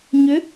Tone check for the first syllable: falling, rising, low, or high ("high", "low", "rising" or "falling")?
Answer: rising